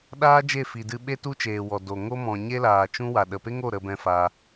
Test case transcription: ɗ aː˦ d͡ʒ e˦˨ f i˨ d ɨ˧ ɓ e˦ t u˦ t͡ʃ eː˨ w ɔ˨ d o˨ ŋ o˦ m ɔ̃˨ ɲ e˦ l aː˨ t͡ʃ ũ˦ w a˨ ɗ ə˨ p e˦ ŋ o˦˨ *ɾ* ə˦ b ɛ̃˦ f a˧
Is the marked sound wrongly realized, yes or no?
no